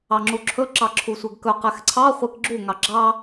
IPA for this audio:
ɑŋ͡ǁuǁʰɵ ǁɑǁʰusʷɛɡkɵ qɛxǀʰɑ χʷekɡ͡ǁu ŋɑɡ͡ǁɑ

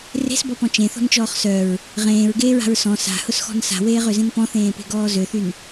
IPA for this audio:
re̤sbɔpɔ̃ t͡ʃẽθɔ̤nt͡ʃɔːχ sœɹ | ʁẽːɹɡeːɹa̤ɹ sɔ̃ sa̤hʊsxɔ̤n sa̤weːʁøzẽn pɔ̃θẽːpe̤ɡɔː zøθyn

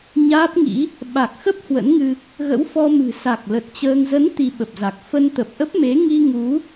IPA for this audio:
ɲaː˦˥p̚ŋḭ˧˥ | ɓa˨˩k̚xə˦˥p̚ hwə̰˧˥nŋɨ˧ | ɣə̰˧˥wfɔ˧mɨ̤˨˩ sa˨˩k̚lə˨˩t̚ t͡ɕəː˧ŋ zə˨˦n t̪i˧ɓə˨˩p̚za˨˩k̚ fə˧nt̪ə˨˩p̚ʔə˦˥p̚me˨˦ ŋi˧ ŋu˨˦

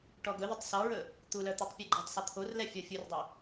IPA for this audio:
ʈɔɡɵðətˤ sɔɹɵ | t̪ulœ t̪utˤpʲɔɡ͡ǃitˤsˤœ t̪ʰorlɛ fʲɔfʲurdˤɛ

